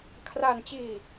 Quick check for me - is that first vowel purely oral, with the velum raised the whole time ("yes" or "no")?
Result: yes